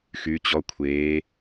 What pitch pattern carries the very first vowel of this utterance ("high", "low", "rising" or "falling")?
rising